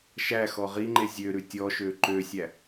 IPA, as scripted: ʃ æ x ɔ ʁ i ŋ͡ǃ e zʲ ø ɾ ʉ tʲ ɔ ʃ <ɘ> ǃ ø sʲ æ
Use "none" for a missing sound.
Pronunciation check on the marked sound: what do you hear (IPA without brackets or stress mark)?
ø